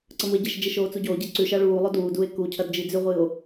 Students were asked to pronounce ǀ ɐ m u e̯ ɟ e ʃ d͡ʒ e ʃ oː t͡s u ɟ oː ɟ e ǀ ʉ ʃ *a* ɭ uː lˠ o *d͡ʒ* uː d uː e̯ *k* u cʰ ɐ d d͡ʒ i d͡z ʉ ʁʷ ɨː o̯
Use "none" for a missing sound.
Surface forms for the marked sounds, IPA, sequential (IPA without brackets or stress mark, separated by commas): a, d, k